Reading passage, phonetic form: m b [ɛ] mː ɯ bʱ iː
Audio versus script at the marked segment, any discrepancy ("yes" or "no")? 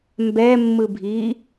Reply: no